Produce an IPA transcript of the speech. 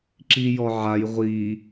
ǁ i j ɔ ʕ a j ʁʷ i

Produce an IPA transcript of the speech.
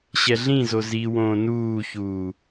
ɕ ɛ ɮ ĩ z o z i w õː n uː ç uː

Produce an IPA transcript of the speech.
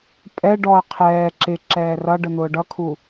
pʼ ɛ ɖ ɔ ɐ̯ qʰ ɛː ǁ ɪ ǁ ɛː r ʌ ɖ ə n̪ ʊː ɖ ʌ kʰ u

